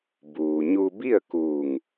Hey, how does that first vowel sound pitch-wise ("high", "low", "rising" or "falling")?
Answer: low